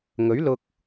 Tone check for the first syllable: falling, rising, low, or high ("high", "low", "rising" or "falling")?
rising